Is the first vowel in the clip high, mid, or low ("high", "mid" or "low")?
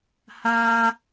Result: low